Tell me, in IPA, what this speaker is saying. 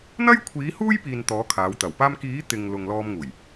n̪ɐ˥jkʷʰiː˨˥huː˥j piː˧nt̪ɔː˨˥kʰaː˨˧wt̪ɐ˨˩w paː˧mkiː˨˥ t̪ɪ˨ŋ lʊ˨ŋlɔː˧mŋuː˨˩j

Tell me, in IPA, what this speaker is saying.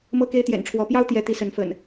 mɤ˦ke˦ɪ̯t̪jɛ̰˨˩nʈ͡ʂʰwɔ˨˦ pjɑ˦ʊ̯t̪jɛ˨˦ t̪i˨˦sə˨˦nfə̰˨˩n

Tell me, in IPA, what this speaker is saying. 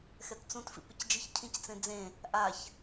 xɛtt͡sũt fḭpɪcd͡ʒɪç cʰĩct͡sẽd͡zẽ | ʔaç

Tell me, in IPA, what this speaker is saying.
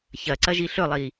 çɐǀɐ ʒiɬɵlˠi

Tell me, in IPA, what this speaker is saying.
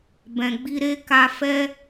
bɛ̃˨ɡ͡bi˧ɾe˦ka˧ fɛ˦

